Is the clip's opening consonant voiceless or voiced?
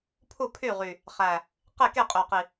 voiceless